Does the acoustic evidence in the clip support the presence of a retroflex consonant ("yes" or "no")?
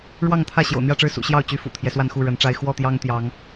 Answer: yes